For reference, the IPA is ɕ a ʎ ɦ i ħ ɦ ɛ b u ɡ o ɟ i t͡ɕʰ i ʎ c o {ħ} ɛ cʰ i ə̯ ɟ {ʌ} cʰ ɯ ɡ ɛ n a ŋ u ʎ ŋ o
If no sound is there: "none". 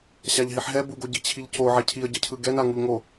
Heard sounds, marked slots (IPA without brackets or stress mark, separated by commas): ʕ, ʌ